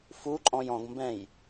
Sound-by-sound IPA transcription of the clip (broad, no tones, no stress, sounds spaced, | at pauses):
f u ǃʼ ɔ̃ j ɔ̃ ɡ m b ɛ̃ j